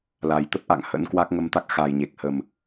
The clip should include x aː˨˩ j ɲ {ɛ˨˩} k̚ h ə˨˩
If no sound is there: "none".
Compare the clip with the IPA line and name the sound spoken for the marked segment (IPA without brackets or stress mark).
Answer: e˨˩